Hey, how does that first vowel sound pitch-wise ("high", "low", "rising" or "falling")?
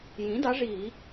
rising